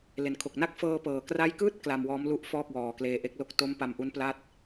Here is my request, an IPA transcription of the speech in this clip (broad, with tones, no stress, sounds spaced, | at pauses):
l e˨˩ n kʰ o˨˩ k̚ n a˥˩ k̚ f ɤː˧ p ɤː˨˩ k r a˦˥ j k ɯː˥˩ t̚ k l a˧ m w ɔː˦˥ m l u˦˥ ʔ f ɔː˥˩ k̚ w ɔː˨˩ k l eː˧ ʔ e˦˥ k̚ l o˥˩ k̚ t o˦˥ m p a˧ m ʔ u˦˥ n p l a˥˩ t̚